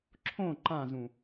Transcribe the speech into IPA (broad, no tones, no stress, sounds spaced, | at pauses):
ǁʰ õ ǃ ã z ũ